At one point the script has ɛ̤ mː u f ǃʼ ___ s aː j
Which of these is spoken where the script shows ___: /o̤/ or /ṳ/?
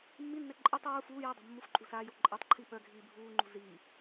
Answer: ṳ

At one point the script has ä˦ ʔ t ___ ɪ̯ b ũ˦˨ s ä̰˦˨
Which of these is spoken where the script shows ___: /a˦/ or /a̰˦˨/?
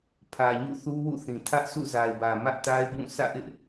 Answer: a˦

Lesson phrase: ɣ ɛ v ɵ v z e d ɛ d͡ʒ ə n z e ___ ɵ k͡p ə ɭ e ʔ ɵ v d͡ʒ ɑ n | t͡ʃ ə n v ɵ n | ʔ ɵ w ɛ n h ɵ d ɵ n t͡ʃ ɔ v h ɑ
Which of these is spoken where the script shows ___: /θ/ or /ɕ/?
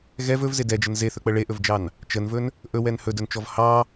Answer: θ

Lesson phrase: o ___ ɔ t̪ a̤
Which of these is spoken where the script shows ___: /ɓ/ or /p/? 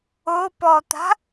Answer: p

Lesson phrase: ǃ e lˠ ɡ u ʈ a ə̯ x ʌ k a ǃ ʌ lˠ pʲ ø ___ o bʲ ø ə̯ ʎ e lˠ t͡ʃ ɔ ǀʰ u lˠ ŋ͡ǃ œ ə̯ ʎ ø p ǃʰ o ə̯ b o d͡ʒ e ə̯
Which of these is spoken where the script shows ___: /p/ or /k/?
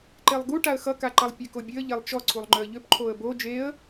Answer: k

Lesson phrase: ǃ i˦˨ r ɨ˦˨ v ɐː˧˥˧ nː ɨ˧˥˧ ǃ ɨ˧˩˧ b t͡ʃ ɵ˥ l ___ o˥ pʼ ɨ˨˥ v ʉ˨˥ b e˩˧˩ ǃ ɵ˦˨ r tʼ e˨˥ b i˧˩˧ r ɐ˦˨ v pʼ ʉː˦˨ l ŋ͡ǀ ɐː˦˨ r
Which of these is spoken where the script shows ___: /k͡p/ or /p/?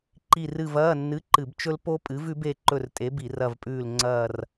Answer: p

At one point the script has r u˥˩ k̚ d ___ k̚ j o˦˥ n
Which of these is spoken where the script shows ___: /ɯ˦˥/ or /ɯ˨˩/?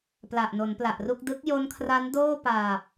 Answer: ɯ˦˥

